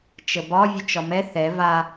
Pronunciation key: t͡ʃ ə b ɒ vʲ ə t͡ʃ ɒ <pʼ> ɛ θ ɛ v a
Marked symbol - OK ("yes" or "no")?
no